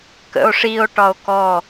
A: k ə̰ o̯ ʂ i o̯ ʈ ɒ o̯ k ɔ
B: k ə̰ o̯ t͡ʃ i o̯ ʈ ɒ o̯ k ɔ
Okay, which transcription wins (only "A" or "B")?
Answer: A